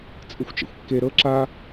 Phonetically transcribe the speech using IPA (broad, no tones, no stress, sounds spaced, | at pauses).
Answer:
t͡sʼ ɯ xʷ t͡ʃ ɛ̰ xʷ kː e ɾ ɤ ǁ a